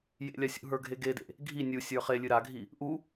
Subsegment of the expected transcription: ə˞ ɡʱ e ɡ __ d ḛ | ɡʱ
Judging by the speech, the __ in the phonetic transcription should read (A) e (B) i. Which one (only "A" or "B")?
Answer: A